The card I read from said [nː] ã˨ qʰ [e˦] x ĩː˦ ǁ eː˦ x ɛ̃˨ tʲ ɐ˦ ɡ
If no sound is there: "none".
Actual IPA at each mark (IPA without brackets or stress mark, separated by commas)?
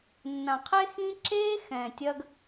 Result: nː, e˦